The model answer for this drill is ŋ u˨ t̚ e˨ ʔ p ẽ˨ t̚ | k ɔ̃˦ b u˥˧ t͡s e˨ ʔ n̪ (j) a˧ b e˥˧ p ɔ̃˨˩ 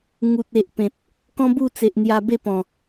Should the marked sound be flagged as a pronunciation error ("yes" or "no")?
no